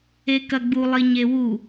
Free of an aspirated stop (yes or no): yes